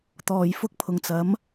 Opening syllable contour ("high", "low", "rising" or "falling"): low